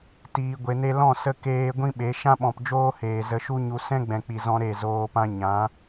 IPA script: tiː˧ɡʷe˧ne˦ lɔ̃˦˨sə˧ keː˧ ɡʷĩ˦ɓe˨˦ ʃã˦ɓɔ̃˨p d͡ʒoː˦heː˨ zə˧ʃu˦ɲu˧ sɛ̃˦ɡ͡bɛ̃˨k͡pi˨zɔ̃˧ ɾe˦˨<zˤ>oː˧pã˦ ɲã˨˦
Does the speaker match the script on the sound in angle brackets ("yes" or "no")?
no